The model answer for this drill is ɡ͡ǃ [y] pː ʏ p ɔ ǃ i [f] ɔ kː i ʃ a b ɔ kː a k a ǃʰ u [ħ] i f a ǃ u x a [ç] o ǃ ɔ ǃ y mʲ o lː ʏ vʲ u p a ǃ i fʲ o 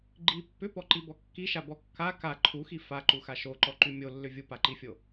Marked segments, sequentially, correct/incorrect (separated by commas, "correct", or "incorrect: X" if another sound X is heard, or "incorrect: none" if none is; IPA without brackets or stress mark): incorrect: i, incorrect: b, incorrect: x, incorrect: ʃ